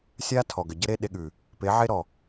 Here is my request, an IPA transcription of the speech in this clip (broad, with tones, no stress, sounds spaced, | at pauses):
sʲ a˦ tʰ ɔ˨ ɡ ə˨ ɟ ə˦ ɾ e˦ ɗ e˧ ɠ ʉ˨ | p e˨˦ ʕ e˦ ɾ ɔ˨